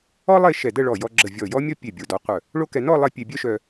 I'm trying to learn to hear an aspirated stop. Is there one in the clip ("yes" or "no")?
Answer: no